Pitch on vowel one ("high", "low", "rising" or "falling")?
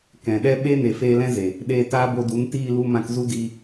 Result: low